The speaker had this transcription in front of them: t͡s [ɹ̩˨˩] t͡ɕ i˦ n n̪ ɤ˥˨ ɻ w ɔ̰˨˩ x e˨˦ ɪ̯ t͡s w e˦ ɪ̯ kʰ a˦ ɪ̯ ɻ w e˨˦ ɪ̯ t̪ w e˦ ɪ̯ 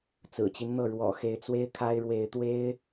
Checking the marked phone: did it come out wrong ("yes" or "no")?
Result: no